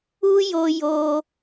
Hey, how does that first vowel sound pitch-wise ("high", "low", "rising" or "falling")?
high